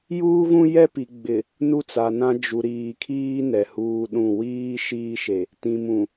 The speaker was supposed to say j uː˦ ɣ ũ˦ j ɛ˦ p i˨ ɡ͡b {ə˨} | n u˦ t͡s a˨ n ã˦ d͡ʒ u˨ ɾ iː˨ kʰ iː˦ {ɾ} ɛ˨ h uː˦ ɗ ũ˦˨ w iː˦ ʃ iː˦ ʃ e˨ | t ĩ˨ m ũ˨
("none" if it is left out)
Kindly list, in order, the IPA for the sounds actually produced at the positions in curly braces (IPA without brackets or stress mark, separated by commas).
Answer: ɪ˨, n